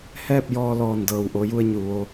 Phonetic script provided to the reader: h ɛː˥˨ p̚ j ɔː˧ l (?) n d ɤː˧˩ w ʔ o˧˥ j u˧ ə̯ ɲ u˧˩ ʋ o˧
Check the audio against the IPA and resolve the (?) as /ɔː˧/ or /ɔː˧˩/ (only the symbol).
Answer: ɔː˧˩